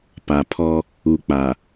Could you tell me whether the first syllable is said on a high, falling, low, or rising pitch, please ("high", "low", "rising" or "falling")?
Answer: low